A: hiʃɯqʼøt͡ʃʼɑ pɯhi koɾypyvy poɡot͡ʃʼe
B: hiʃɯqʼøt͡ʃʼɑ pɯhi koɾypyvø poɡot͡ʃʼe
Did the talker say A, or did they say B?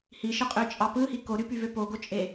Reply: B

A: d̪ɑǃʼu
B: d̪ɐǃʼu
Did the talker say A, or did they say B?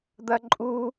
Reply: B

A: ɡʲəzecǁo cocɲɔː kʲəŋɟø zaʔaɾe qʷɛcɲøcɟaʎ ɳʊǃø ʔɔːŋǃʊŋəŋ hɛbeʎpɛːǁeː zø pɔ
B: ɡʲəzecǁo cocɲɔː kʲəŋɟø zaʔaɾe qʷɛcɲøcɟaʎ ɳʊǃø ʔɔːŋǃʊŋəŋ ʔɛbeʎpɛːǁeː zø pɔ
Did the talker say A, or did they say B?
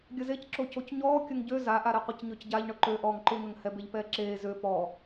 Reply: A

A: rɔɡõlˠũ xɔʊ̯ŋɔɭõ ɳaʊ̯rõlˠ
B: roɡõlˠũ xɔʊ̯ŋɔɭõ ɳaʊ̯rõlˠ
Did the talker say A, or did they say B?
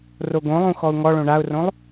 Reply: B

